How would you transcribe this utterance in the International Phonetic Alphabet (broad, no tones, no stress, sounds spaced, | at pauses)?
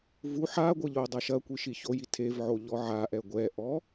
v u ħ a ɡʷ ɘ ʎ o dˤ a ʃ ɐ kʷ i ʃ i ç o j i tʰ e v ʕ o ʎ ɔ ʕ a ʔ ɛ ɡʷ ɛ ʔ ɔ